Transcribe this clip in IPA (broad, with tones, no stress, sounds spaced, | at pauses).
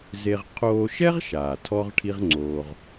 z e˧ ʁ qʰ oː˧ ʃ ɛ˥ ʁ ʃ aː˩ tʰ ɔ˧ ʁ ʈʰ i˥ ʁ ŋ͡ǀ oː˧ ʁ